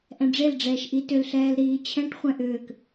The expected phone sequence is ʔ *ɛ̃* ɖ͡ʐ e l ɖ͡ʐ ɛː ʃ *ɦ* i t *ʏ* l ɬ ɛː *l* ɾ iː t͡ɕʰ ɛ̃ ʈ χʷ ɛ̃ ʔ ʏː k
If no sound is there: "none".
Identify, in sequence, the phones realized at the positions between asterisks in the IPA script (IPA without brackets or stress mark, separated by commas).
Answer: ɛ̃, ʔ, ʏ, l